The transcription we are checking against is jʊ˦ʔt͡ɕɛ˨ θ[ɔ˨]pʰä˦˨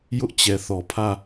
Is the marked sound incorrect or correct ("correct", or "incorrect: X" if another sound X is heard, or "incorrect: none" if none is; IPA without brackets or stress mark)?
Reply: correct